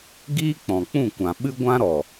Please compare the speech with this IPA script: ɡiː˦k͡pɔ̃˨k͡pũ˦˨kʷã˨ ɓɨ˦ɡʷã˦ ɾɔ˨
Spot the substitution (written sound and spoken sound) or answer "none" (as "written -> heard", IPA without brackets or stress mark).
none